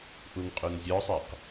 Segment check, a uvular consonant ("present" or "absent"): present